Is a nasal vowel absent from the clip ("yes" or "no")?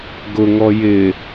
yes